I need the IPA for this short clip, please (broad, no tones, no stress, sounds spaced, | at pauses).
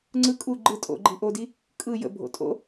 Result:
ŋ͡ǀ ɯ kʼ u ɡ͡ǃ ɯ tʼ o̰ ɡ͡ǃ i ʔ o d i | kʼ ɯ j ə̰ bʱ o̰ tʼ o̰